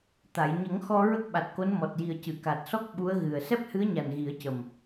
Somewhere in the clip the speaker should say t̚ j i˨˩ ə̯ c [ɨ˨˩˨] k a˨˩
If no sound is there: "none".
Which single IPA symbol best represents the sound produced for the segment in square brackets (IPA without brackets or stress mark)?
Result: ɨ˨˩˨